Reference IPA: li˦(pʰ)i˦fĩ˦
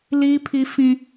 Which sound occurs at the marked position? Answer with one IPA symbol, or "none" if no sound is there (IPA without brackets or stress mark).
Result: pʰ